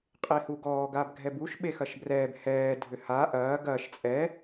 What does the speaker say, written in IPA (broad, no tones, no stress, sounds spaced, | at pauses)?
qʼ e h u ɡ ɔː ɡ a b ɡʱ ɛ b u ʃ ɓ e x ɐ ʃ b r ɛː b h ɛː dʱ ʏ h a ʔ ɐː ɡ ɐː ʃ t͡sʼ ɛ